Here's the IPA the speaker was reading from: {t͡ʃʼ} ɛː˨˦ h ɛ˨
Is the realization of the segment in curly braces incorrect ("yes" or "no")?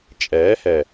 no